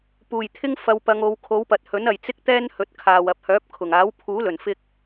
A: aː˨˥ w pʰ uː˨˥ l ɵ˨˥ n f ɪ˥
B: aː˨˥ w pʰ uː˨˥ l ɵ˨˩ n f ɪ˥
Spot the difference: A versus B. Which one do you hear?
B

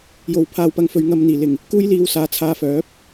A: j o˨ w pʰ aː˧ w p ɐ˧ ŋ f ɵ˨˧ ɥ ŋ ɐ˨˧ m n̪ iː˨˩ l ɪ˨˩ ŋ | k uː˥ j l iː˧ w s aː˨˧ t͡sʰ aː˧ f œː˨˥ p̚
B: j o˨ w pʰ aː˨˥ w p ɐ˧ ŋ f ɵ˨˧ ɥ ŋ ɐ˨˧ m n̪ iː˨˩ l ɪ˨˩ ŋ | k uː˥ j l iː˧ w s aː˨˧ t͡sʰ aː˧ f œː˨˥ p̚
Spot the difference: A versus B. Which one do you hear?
A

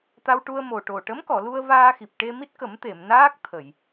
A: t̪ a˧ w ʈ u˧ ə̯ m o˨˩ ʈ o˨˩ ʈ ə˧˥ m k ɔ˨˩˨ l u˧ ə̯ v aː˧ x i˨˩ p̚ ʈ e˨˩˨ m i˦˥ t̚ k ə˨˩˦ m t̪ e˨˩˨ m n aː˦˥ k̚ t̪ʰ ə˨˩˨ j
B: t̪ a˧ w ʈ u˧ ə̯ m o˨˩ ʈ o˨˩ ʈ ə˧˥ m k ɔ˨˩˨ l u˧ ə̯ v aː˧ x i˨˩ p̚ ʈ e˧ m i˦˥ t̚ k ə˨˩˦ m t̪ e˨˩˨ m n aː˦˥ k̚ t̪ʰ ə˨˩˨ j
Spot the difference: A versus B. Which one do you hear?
B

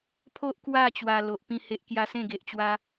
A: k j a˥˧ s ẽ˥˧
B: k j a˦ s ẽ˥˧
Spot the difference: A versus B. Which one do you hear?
B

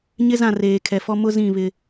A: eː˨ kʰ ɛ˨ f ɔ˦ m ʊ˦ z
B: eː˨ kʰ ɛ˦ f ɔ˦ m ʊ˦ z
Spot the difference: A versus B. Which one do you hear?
A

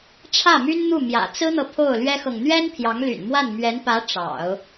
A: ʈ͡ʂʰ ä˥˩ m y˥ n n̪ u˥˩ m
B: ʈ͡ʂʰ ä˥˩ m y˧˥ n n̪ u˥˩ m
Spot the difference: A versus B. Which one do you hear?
A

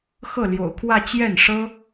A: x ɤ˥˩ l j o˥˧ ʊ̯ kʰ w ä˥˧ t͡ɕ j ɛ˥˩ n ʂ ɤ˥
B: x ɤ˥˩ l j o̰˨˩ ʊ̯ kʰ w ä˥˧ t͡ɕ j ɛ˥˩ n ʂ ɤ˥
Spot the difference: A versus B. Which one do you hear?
B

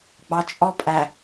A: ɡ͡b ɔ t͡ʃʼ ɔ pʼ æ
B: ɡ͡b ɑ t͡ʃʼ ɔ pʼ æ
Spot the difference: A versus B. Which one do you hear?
B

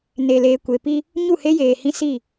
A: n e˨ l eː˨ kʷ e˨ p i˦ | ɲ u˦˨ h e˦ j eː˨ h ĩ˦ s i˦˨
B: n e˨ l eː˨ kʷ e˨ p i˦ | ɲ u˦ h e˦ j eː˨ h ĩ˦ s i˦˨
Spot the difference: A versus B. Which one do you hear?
A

